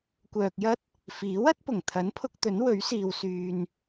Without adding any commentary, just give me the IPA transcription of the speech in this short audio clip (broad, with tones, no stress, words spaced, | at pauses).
kʷœː˨k̚jɐ˥t̚ | fiː˨˥wɐ˨˥t̚pʊ˨˩ŋ t̪ʰɐ˨˥npʰʊ˧k̚t̪ɵ˨˥n wɵ˨˥ɥsiː˨w syː˨n